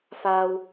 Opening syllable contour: high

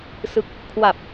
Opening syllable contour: low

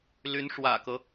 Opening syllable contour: rising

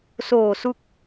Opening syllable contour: low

